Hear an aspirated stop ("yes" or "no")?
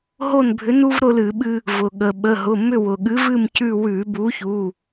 no